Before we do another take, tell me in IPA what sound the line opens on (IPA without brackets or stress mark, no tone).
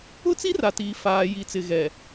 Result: ʊ